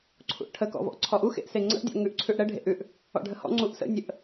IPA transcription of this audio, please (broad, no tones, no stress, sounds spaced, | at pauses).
ǀʰ ṵ ʔ ʈʰ ə k ɔ̰ v ɔ̰ ʔ ǀʰ ɔ ʔ u x ḛ ʔ s e ŋ͡ǀ ə̰ ʔ dʲ ɔ̰ ŋ ʉ ʔ ǀʰ ʉ ʔ ɽ ə ɖʱ ḛ ʔ ʉ ʔ | ɔ̰ ɖʱ ə h ɔ̰ ŋ͡ǀ u ʔ s ə̰ nʲ ə ʔ